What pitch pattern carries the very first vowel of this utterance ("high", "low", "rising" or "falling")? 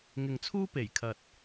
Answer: low